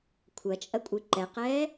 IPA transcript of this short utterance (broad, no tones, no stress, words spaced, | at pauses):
kʷʰɐt͡ʃʼɐkʷʼɨ ǃɛqɛː